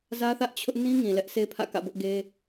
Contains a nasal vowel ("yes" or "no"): yes